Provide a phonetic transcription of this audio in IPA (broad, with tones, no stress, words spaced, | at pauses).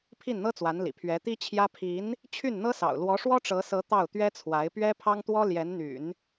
pʰi˥˩nn̪ɤ˥t͡swa˧˥nlḭ˨˩ pʰɥɛ˧˥t̪i˥t͡ɕʰjä˥ pʰi˧˥n | t͡ɕʰy˥˩nn̪ɤ˥sɑ̰˨˩ʊ̯ lwɔ˧˥ʂwɔ˥ʈ͡ʂɤ˧˥sɤ˧˥ t̪ɑ˥˩ʊ̯t̪ɥɛ˥t͡sʰwa˧˥ɪ̯ pɥɛ˥pʰɑ˥ŋt̪wɔ˥ ljɛ˧˥nn̪y̰˨˩˦n